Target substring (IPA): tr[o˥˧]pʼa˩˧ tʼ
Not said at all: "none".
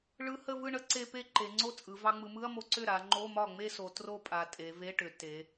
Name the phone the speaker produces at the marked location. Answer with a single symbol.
o˥˧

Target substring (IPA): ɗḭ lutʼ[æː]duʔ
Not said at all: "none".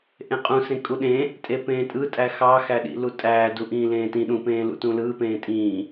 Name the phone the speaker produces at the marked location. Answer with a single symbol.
æː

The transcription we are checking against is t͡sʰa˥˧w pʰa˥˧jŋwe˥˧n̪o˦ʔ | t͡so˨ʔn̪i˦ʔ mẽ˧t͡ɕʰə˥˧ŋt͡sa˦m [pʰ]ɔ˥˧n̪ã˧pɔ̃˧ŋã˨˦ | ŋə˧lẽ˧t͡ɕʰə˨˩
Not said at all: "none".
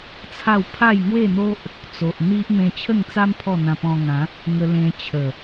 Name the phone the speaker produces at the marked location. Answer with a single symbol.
pʰ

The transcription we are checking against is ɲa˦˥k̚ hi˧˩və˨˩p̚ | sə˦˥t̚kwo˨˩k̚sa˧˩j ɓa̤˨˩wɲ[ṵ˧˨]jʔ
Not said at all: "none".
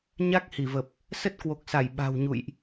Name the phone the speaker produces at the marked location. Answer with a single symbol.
ṵ˧˨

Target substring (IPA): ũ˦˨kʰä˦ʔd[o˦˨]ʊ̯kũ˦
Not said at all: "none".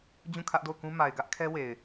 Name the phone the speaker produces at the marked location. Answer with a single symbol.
o˦˨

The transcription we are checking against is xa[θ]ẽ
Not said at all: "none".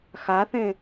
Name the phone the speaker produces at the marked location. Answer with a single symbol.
θ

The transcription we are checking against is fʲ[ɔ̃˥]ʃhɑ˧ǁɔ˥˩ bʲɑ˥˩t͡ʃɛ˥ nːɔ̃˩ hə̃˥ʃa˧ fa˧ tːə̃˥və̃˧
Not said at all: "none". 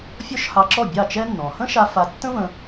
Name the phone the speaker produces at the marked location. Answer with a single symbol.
ɔ˥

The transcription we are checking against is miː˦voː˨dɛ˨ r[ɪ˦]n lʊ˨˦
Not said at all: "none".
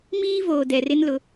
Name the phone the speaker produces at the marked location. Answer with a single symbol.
ɪ˦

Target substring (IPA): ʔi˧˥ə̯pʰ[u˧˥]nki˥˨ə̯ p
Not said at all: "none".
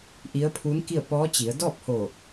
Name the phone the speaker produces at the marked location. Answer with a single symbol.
u˧˥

